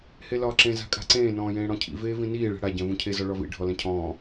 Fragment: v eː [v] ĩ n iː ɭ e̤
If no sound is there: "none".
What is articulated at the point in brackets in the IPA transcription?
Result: v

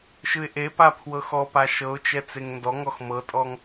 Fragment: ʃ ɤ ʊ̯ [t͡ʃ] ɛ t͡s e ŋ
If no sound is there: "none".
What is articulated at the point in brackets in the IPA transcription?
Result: t͡ʃ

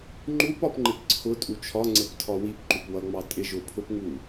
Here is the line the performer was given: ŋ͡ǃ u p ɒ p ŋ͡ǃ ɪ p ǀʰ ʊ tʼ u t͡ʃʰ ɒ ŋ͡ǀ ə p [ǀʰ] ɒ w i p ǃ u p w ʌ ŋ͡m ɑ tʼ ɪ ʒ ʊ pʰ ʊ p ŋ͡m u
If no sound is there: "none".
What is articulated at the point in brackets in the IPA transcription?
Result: tʰ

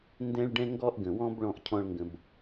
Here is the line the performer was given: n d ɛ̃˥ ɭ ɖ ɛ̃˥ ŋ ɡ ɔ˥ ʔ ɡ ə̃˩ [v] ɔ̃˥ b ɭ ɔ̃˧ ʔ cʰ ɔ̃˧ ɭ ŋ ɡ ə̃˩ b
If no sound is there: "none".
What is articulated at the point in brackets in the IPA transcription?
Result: w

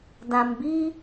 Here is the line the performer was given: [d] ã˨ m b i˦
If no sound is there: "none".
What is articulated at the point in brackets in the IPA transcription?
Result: d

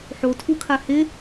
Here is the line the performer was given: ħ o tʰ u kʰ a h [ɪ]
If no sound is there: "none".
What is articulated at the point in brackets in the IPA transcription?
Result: ɪ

